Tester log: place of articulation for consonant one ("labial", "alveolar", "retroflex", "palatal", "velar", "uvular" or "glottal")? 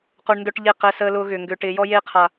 uvular